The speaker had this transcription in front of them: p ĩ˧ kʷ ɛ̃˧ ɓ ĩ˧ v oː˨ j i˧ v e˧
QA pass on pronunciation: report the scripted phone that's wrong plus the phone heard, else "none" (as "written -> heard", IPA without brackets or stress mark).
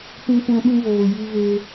none